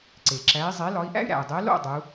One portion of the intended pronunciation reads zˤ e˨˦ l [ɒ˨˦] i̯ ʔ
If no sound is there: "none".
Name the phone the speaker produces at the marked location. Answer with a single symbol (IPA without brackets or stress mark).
ɒ˨˦